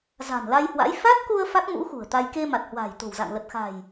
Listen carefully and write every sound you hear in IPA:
za̤˨˩nla˧jhwa̰˧˥j fa˦˥t̚ku˧ə̯ fa˦˥k̚mṵ˧˥ xṳ˨˩ə̯t̪a˧j ke˧ ma˨˩t̚hwa̤ː˨˩jt̪o̤˨˩wza̰˧˨ŋ lə˨˩t̚xa̤˨˩j

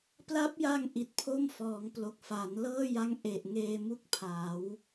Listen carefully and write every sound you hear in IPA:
pla˦˥p̚ja˧ŋ ʔi˨˩t̚pʰo˥˩mfɔː˩˦ŋ plo˨˩k̚fa˩˦nlɤː˥˩ja˦˥ŋ ʔe˨˩ʔ ŋeː˧mu˥˩k̚pʰaː˩˦w

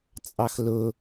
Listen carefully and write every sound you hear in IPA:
t͡sʼɑxlʊ

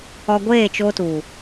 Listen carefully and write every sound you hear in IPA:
ɔ˧ɡʷeː˦˨t͡ʃo˧ tu˨

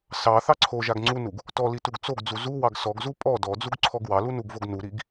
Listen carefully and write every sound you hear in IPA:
sɑ θɑǀʰoʒaɡ ŋ͡ǀunuɡ | tɔli tuɡt͡soɡd͡zu zuwɑɡ sɔɡzu pʼɔ dɔd͡zuɡ ǀʰɔɡwɑlu nuɡvoɡnuɾiɡ

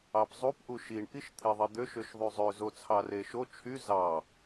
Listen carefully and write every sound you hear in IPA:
ɑpzˤup ʔuʃiɳ ʔiʃt̪ʰeðˤid̪øʃ øʃðˤyzˤø zot͡sʰɑreʃo t͡ʃʰy zɑ

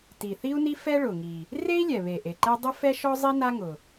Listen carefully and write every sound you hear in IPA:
ti˩θi˥u̯ni˥ fɛ˥ɭʊ˩ŋi˩ | re˥i̯lʲɛ˩βe˩ ʔe˩ǃɛ˥ dˤʊ˥fɛ˥ʃɔ˥zˤi˥ na˥ŋʊ˩

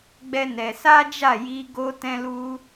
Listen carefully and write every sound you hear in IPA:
ɡ͡bɛ˦nɛ˧ sa˦d͡ʒa˦˨ ji˧ ɡo˦ tɛ̃˦lu˦

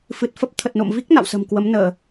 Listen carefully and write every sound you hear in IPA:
fɨ˨˩t̚fə˦˥p̚ t̪ʰə˨˩t̚no̰˧˨mvi˦˥k̚ na̰˧˨wsə̤˨˩m kwə˨˦mnəː˧˩˨

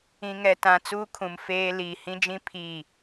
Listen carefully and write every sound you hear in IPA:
ĩ˨ŋɛ˨ tã˨ t͡suː˦kʰũ˨m feː˦ liː˨ hĩ˦d͡ʒĩ˦ pʰiː˦˨

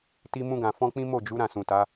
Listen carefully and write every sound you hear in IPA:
ti˧mũ˧ɡã˨ fɔ̃˧ k͡pĩ˦ mo˦˨d͡ʒu˨˦ ɾã˦˨sũ˨ta˨˦

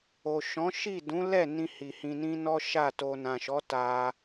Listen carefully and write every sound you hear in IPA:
o˨ʃɔ̃˨˦ʃi˦˨ dũ˨˦lɛ˦˨nĩ˧ hi˨hĩ˧nĩ˦ nɔ˦ʃa˦˨to˧ nã˨ʃɔ˨˦ ta˧

